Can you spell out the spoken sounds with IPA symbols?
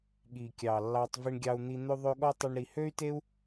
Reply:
ɠ i˨ kʲ ɑ˨ lː ɑ˧ tˤ v i˧ ɳ ɡʲ ɑ˧ u̯ n̪ i˧ n̪ ø˧ ðˤ ø˧ ɠ ɔ˦ tˤ ʉ˧ ɳ ɾ i˧ h ø˦ y̯ t e˦ u̯

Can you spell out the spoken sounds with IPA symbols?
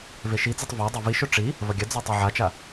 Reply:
v e ʃ i d͡z o tˤ v ɔ dˤ ɐ v i ʃ ʊ ʈ͡ʂ i | v ɐ ɡʲ ɐ d͡z o tˤ e ʕ a t͡ʃ a

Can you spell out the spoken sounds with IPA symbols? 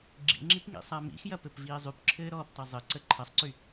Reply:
ɡ͡ǁ ḭ ŋ͡ǁ i p ŋ ḭ sˤ a m ḭ x j ɐ p ɘ p v iː zˤ y p ǁʰ ɘː ɾ ɔː p tˤ ɐ zˤ ɘ ǀ ə ǃʰ ɐ sˤ ǀ y

